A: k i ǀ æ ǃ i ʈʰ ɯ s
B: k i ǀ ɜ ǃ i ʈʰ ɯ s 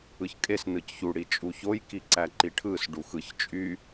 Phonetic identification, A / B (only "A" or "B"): A